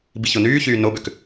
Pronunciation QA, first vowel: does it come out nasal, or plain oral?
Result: oral